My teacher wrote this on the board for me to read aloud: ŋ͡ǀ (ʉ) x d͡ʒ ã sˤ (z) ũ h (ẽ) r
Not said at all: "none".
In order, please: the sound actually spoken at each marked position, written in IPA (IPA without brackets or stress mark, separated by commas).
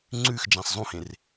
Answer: ʉ, zˤ, ẽ